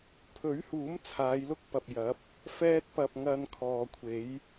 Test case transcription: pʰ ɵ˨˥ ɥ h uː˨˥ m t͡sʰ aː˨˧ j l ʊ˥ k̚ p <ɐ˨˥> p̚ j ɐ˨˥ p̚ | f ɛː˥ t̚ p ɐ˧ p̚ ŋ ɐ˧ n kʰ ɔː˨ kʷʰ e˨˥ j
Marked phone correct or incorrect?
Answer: incorrect